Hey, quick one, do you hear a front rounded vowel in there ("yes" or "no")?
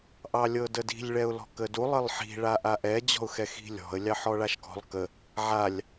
no